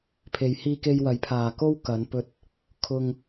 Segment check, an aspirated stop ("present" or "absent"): present